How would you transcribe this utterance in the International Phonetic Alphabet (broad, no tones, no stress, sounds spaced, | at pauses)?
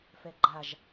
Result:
f ɛ ɡ͡ǃ a ʒ